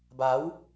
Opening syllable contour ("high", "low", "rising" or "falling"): rising